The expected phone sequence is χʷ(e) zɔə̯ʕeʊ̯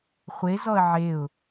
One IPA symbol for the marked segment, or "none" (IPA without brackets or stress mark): e